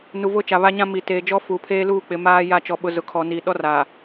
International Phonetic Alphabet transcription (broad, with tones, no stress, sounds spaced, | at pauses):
n u˨ v ʊ˦ t͡ʃ a˨ β a˦ ɲ ã˦ m i˨ t eː˨ d͡ʒ ɔ˦ f u˨ pʰ eː˦ l uː˦˨ k͡p ɪ˨ m aː˦ j a˦˨ t͡ʃ ɔ˨ ɓ ʊ˨ z ʊ˨ kʰ ɔ˨ n iː˨ ɗ ɔ˦ r aː˨